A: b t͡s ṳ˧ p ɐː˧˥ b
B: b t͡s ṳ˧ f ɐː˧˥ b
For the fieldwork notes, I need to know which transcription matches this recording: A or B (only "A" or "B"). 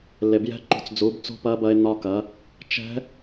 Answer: A